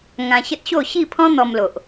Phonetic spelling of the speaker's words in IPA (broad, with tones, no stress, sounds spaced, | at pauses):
ŋ ã˧ ɕ ə˦ t̚ ɕ o˥˧ ɕ i˥˧ pʰ ɔ̃˦ n̪ ɔ˧ m l o˨ ʔ